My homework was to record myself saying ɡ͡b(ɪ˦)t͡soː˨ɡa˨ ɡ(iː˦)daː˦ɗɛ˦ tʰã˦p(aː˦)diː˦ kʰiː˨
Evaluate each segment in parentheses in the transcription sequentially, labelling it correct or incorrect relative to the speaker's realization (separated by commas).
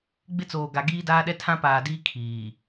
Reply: correct, correct, incorrect